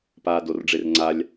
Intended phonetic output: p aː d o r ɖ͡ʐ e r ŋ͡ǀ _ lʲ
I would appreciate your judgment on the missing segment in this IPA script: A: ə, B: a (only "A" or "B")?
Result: B